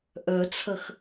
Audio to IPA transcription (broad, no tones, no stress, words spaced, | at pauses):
ʔœt͡sʰɐx